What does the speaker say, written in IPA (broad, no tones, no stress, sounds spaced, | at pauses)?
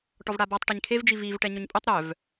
ʈ ɔ v ɽ a b ɔ tˤ ʈ æ ɲ kʰ e v d͡ʒ i v i v ʈ ɛ ɲ ɵ ɲ pʼ ɵ tˤ ɾ œ v